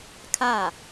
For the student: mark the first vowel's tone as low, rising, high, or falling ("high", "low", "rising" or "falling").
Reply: falling